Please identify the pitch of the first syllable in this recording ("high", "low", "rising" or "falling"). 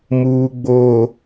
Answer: low